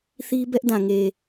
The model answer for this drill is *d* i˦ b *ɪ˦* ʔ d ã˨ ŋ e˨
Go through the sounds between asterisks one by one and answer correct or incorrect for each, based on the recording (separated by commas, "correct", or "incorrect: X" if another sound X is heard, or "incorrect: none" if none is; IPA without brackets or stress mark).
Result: incorrect: θ, incorrect: ɛ˦